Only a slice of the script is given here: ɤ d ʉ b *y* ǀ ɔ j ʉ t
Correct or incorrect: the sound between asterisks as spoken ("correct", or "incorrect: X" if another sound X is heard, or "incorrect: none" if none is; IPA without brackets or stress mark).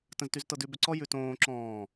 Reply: incorrect: ʏ